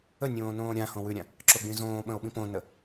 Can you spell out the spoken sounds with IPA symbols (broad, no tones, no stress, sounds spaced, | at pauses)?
ə nʲ õː n õː ɾʲ ã h õ w ʉ ɾʲ ã | ǁ o ɡ͡b ĩ z õː ɓ ə̃ o̯ ɓ ĩ p õ n ə